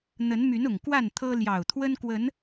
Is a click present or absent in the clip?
absent